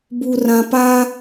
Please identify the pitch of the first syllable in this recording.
low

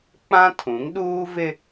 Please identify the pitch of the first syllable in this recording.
high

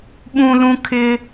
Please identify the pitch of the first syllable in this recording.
high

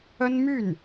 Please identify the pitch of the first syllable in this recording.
high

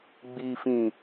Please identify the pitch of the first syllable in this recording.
low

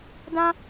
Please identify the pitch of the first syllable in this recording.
high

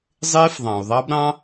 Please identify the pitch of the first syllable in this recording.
high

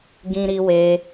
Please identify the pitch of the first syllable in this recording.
high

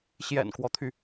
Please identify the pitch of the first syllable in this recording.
low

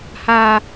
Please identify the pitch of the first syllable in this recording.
high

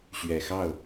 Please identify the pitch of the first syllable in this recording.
low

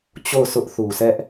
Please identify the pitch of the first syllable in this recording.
falling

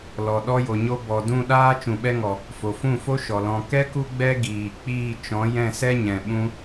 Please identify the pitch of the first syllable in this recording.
low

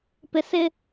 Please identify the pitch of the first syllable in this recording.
low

